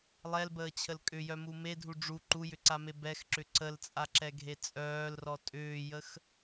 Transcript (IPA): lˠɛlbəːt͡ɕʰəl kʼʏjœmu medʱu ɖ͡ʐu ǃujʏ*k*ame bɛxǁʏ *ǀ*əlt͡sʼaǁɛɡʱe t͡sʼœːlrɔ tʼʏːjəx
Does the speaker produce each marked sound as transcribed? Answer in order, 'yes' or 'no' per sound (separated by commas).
no, yes